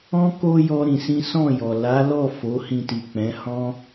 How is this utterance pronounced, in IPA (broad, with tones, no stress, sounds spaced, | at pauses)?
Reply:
ɔ̃˦ k o˧ j ɔ˦ ɾ ĩ˧ s ĩ˦ s ɔ̃˦˨ j ɔ˨ l a˨˦ l ɔ˦˨ f o˨˦ h ĩ˧ t i˨ k͡p ɛ̃˨˦ h ɔ̃˦